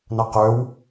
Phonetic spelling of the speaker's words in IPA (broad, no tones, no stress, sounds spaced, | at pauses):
n ɐ q ø w